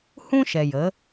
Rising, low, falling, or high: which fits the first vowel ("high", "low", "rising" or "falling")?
high